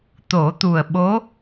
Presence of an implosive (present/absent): present